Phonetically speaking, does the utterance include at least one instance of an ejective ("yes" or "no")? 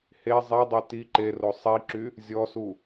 no